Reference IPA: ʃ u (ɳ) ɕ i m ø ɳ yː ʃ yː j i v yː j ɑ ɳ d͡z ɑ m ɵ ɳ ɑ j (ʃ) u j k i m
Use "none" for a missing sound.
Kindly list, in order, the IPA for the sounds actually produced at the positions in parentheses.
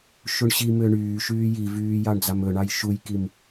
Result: ɳ, ʃ

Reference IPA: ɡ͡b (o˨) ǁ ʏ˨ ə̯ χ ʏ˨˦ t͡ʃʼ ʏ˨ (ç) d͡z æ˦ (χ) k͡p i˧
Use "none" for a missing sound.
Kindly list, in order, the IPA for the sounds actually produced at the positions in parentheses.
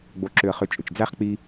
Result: o˨, t͡ʃ, χ

